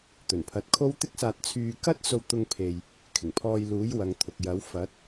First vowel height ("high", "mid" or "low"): mid